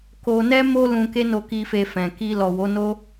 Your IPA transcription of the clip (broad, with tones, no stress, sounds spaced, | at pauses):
k o˧ n ɛ˦ m o˦ l ũ˧ k e˦ n o˧ k i˧ f e˧ f ɛ̃˨ k i˧ l ɔ˨ w o˨˦ n o˦